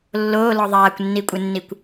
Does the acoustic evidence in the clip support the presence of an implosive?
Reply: no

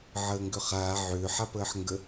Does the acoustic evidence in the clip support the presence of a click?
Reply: no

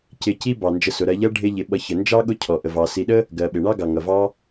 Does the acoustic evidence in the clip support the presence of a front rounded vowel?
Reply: no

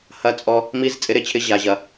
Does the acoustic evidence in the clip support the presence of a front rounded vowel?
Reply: no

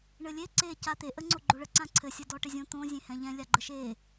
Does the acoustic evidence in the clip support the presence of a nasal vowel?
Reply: yes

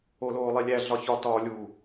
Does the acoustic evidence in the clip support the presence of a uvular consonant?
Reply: no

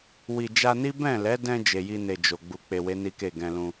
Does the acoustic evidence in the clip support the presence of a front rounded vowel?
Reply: no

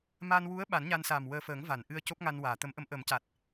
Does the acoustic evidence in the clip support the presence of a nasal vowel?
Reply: no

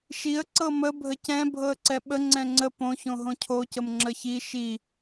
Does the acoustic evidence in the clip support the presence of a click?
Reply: yes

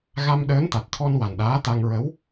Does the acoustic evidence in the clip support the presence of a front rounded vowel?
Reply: no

